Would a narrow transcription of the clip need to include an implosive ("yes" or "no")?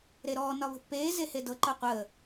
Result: no